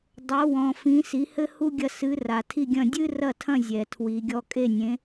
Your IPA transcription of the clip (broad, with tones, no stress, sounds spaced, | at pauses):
dˤ o˩˥ w ɔ̃˩ f ĩ˩˥ s i˩˥ h ɘ˥ h u˥ ɡʲ ɐ˥˩ s ɨ˩˥ r a˩ tʰ i˥˩ ɡʲ ɐ̃˥˩ dʲ ɨ˥ r ɐ˥˩ tʰ ɐ̃˥˩ zʲ ɛ˩ tʰ w i˩ ɡʲ ɔ˧ kʼ e˥˩ nʲ ẽ˩˥